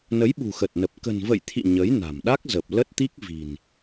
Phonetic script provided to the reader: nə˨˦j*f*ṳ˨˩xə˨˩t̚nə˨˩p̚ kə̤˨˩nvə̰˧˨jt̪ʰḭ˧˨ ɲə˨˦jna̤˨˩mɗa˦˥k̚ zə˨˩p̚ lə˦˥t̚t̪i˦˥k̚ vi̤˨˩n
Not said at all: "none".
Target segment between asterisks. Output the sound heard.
ɓ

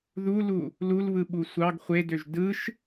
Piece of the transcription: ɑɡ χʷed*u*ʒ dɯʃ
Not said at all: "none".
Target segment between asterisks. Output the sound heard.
ø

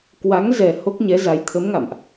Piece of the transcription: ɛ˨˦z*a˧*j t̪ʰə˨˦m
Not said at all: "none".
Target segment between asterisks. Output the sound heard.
a˨˦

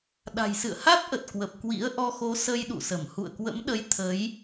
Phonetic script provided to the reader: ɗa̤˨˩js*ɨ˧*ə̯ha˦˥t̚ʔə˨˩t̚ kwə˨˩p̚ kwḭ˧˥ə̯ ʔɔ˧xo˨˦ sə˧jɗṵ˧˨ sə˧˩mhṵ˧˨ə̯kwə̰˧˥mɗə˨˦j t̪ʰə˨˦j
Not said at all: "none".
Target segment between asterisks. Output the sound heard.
ɨ̰˧˨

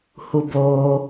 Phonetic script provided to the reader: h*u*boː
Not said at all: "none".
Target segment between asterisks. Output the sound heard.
u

